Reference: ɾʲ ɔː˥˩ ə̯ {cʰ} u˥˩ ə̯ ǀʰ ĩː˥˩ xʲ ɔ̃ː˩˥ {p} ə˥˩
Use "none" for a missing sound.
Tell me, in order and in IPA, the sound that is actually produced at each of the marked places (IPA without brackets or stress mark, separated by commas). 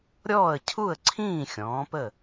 cʰ, p